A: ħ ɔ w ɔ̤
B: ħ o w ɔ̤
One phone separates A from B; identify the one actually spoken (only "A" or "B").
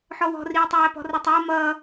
A